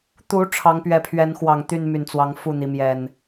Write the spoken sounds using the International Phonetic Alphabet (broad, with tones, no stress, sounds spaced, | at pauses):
t̪ u˨˦ ʈ͡ʂʰ ɑ˨˦ ŋ p ɥ ɛ˨˦ pʰ ɥ ɛ˨˦ n x w ɑ˨˩ ŋ t̪ y˥˨ n m y˨˩ n t͡s w ɑ˨˦ ŋ f u˥˨ n̪ i˨˦ m j ɛ˨˩ n